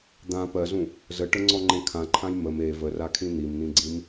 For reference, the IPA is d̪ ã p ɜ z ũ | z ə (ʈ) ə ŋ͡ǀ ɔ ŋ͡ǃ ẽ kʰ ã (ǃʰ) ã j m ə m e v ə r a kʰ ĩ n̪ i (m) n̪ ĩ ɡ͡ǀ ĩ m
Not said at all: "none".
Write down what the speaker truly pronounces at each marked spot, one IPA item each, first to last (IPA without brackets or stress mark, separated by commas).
ʈ, ǃʰ, m